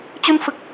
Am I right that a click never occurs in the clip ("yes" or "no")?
yes